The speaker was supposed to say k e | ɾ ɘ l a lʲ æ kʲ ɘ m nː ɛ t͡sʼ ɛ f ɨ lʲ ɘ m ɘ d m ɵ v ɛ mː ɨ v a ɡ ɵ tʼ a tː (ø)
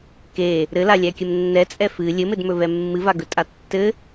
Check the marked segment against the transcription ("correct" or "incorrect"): incorrect